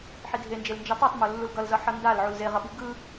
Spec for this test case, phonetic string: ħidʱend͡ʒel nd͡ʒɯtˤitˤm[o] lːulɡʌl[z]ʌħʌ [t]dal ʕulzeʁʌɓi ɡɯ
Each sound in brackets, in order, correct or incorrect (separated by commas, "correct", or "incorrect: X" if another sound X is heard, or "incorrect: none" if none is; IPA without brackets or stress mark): correct, correct, incorrect: n